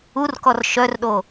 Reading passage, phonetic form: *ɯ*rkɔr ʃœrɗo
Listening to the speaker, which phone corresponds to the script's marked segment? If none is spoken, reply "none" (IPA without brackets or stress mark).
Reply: u